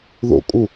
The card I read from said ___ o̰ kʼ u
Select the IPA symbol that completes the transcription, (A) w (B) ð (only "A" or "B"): B